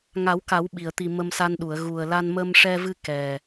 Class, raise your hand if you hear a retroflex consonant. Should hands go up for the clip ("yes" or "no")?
yes